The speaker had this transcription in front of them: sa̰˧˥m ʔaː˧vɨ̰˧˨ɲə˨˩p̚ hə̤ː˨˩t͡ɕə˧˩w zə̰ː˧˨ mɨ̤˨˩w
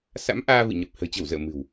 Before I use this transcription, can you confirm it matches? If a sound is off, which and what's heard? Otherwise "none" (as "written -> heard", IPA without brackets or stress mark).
none